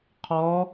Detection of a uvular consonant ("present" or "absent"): present